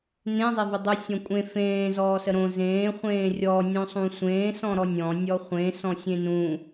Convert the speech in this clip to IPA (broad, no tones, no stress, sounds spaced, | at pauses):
n ẽ zˤ e v ə dˤ u sʲ ɔ̃ kʷʼ ẽ f ẽː z ɔː s ə ɾ õ z ẽː χʷ ẽː rʲ ɔ nʲ õ sˤ ũ sʷ ẽː s ɔ̃ ɾ ɔ nʲ ɔ̃ nʲ ɔ χʷ ẽ s ɔ̃ sʲ ẽ n ũ